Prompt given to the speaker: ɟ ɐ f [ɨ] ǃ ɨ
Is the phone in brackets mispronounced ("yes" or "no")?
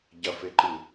yes